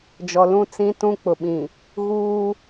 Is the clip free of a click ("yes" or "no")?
yes